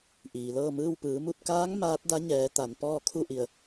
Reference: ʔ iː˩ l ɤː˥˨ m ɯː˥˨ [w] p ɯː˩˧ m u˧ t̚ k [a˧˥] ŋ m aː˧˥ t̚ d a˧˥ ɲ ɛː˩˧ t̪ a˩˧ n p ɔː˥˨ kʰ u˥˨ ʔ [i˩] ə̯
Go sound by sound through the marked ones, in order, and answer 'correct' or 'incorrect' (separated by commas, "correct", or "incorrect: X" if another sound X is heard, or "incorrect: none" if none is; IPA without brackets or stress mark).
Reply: correct, incorrect: aː˧˥, incorrect: i˧˩